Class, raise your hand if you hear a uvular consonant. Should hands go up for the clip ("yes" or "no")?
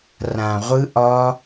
yes